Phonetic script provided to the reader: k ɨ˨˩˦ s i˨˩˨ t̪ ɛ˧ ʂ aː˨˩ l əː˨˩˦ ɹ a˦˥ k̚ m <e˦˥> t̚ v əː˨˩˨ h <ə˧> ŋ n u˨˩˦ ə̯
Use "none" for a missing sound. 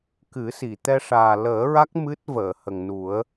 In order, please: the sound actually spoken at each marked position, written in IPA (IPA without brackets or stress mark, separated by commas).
ɨ˦˥, ə˨˩